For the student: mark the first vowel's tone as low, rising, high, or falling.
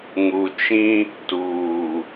low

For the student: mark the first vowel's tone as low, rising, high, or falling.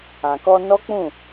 low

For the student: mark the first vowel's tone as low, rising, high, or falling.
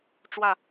falling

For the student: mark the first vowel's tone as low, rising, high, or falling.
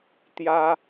high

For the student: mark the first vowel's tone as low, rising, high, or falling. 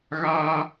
high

